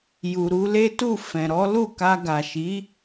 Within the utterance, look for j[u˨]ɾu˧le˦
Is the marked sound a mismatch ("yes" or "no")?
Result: no